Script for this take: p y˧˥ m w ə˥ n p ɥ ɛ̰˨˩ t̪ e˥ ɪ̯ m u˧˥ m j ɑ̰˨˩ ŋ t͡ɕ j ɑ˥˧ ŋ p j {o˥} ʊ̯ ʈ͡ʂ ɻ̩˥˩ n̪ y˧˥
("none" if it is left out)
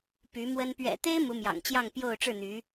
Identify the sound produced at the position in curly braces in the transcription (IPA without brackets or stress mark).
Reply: o˥˧